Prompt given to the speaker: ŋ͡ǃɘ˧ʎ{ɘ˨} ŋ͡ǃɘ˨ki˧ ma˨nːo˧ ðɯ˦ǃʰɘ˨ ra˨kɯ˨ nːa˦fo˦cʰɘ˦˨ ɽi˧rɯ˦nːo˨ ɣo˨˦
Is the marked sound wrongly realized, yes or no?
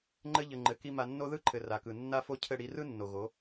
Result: no